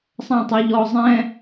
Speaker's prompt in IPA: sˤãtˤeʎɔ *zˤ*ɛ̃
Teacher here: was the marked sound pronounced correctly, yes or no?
yes